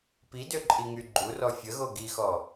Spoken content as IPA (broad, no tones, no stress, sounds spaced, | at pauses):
p i d ø ǃʼ i ŋ y ɡ͡ǃ u r ɔ fʲ ə ɣ o ɡ i x ɔ